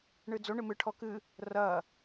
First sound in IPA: ɳ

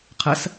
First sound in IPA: qʰ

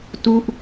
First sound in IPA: t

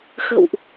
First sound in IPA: x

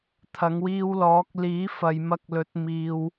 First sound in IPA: t̪ʰ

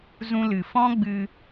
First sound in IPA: z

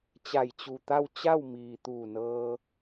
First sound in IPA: t͡ɕ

